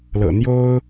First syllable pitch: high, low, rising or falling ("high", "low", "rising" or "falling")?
low